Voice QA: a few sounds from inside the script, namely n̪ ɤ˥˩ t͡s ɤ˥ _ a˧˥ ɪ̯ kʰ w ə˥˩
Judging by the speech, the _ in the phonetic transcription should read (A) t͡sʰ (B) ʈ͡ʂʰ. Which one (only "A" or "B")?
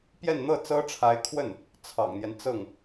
B